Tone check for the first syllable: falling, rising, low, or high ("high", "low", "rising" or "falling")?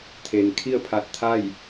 low